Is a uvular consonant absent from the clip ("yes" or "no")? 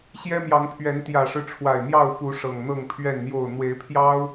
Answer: yes